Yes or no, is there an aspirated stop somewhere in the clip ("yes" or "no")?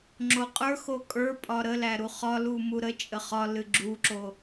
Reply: no